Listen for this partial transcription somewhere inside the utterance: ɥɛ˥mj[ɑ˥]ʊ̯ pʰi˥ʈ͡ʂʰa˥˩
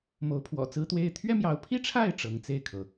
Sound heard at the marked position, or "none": ɑ˧˥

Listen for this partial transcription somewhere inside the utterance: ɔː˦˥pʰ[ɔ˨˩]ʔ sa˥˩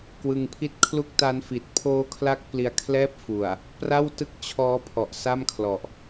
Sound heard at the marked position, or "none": ɔ˨˩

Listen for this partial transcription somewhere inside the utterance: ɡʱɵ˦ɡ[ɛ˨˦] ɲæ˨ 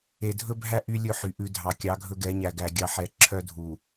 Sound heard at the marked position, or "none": ɛ˨˦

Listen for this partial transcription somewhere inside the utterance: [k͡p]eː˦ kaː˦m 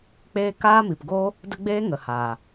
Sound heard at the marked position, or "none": k͡p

